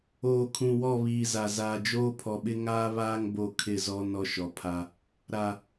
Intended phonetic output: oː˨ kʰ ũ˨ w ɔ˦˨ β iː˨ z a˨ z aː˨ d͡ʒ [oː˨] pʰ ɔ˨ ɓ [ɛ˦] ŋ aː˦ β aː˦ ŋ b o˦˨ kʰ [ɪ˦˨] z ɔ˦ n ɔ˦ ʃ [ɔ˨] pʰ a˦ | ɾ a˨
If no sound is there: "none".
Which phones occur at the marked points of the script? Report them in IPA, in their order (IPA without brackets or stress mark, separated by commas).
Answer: oː˦, ɪ˦, ɪ˦˨, ɔ˨